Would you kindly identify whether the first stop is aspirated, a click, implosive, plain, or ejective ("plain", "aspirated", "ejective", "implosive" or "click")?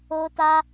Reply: plain